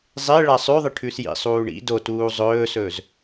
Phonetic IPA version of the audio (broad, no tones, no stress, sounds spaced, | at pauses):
zˤ e ɭ a sˤ ʉ ðˤ ɨ ʈʰ ʉ s j ḭ sˤ uː ɳ ḭ d o t uː zˤ ɵː s ɵː z